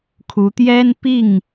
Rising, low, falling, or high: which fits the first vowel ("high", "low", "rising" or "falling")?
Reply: rising